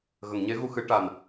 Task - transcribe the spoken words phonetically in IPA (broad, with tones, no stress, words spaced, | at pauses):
ɣə˨˩˨ŋɲe˧˥ɣu˧ xɨ˧˥ ʈa˨˩n